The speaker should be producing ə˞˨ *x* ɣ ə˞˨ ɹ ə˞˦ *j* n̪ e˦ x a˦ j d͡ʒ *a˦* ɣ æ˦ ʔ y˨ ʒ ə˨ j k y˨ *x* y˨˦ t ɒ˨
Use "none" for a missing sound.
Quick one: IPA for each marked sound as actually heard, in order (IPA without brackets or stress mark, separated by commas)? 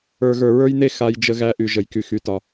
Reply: none, j, ə˦, x